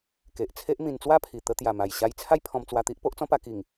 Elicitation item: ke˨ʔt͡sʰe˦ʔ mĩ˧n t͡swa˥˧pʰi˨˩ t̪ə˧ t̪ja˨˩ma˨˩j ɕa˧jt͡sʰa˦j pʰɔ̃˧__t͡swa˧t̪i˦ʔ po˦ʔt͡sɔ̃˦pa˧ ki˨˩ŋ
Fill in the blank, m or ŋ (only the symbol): m